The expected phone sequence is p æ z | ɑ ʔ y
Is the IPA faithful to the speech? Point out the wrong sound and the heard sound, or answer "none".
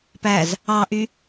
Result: none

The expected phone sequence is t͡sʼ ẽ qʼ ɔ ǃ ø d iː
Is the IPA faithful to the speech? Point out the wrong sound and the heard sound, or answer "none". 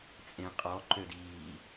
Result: none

